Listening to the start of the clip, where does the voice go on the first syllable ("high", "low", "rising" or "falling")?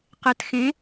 low